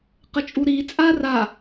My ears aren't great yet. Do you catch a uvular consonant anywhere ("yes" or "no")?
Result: yes